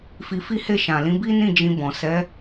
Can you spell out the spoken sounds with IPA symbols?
fi˧fi˦he˦˨ ʃã˨lĩ˨˦bi˦ nĩ˦˨d͡ʒĩ˧bɔ̃˨ sɛ˨˦

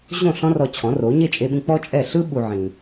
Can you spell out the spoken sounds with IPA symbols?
ʑõ˥˩ ɬɔ̃˥rɔ˧ t͡ɕʰɔ̃˩˥ro˩˥ ɲe˥˩t͡ʃʼe˧ɓĩ˧k͡pɔ˥ t͡ʃʼɛ˥˩ ɬɯ˥ ɓu˧ ʕĩ˧

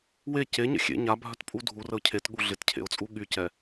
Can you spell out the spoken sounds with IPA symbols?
we ceɲə̰ xʲḛ ɲabʱœtpʼu dʱurəʊ̯ cʰetɠu ɮɪtcʰḛʊ̯t͡sʼu ɠycɛ

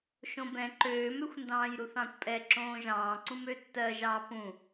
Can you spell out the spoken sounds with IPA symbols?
ʃõbɛ̃ ǃøːmøxʷndɑ̃ːjɾuθ ɑ̃kʷpʼɛ ǁõːʒɑ̃ː ǀũmøtːɜʒɑː pũ

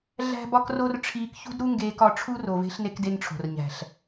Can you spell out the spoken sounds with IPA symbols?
ɮæ̤˦bɒ˦kro˦r ʈ͡ʂʰiː˧kçṳ˦dɾu˦ŋɡeː˧k ɒ˧ʈ͡ʂʰu˦ro˨ve̤˧ɬ ne˧kde˧nʈ͡ʂʰo̤˨r ɲæ̤˨ɬ

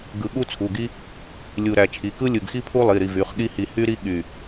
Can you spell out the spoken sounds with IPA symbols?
ɡɯ˧˩ɠu˥t͡sʰu˩˧˩ɡi˥ | lʲu˧˩ ɾæ˧˩t͡ʃʰi˩˧˩kɯ˥ lʲɯ˧˩ɡ xi˥pʰu˥lˠi˩˧˩ɾi˧˩ vy˩˧˩χɠi˥hi˧˩ hy˥ ɾi˥ ɠy˧˩

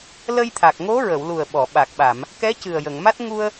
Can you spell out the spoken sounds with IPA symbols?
lə˧jt̪ʰa˨˩k̚ŋo˧˥ɹə˨˩˨w lu˨˩ə̯ɓɔ˨˩˨ɓaː˨˩k̚ ɓa˨˩˨m | kɛ˧˥ cɨ˨˩ə̯jə˨˩˨ŋma˦˥t̚ ŋu˧ə̯

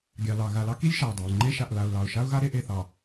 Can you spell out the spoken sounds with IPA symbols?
ɡʲɑ˨lɑ˨ ɣa˨lɑ˦ki˦lʲ ʃa˨ʊ̯dˤa˨ʊ̯ ŋ͡ǃe˦ʃa˨ʔla˨ʊ̯ lɑ˨ʊ̯ ʃa˦ʊ̯ɣa˦ ɾe˦ʔe˦˨θɑ˨

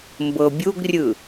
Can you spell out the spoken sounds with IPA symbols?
mbɤbʲuɡrʲɯ

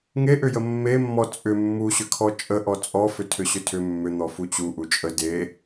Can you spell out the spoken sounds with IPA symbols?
ŋeʔʏjə mːemːɔ t͡sʼʏ mːuɕʏkʰɔ t͡ʃʼəʔɔ t͡sʼɔfʏ tʰʏɕʏtʰʏ mːʏ n̪ɔfut͡ɕu ʔut͡ʃʼə de

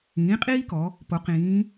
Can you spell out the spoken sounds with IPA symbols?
ĩː˩˥qʼiː˥kɔ˩˧ | po˩˧ qĩː˩˧

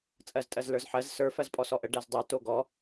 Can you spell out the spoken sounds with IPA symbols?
t͡sʼɜztʼɜzlə˞zħɜz sə˞ fɜzpʼɔsɔʔə ɖæzdˤə˞ toɡɔ

